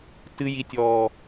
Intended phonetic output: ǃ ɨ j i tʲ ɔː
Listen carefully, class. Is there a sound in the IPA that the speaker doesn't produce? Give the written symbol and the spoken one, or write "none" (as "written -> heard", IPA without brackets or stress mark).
ǃ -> t